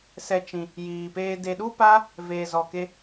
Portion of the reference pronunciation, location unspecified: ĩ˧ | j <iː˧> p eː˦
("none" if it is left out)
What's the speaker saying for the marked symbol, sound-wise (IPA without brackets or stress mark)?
iː˧